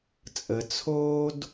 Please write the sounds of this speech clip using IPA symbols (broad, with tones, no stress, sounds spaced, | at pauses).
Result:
t͡sʼ ə˩ t͡sʰ oː˦ d